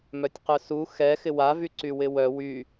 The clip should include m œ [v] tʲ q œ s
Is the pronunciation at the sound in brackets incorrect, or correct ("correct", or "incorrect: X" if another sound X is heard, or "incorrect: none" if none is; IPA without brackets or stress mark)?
incorrect: none